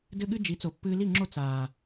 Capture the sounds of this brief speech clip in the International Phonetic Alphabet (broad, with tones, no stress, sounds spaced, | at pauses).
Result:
d ɘ˦ ɠ ɨ˦ d͡ʒ i˨˦ t͡s o˨ pː ɨː˧ l i˦˨ ŋ͡ǁ o˦˨ t͡s aː˨